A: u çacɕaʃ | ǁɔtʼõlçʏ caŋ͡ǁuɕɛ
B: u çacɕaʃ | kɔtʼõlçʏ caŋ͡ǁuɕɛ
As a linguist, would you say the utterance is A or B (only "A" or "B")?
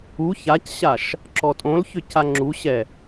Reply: A